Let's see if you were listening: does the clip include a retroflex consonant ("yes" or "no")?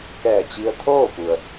no